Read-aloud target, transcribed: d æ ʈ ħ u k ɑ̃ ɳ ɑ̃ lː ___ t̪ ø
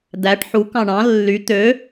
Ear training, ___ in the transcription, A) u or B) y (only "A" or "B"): B